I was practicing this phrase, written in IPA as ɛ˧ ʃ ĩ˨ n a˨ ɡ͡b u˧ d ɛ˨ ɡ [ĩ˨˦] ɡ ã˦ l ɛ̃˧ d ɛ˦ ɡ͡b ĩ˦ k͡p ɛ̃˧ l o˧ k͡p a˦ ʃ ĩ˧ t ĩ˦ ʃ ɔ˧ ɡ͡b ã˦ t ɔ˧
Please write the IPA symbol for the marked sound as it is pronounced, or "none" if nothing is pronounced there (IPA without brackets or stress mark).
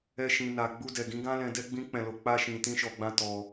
ĩ˨˦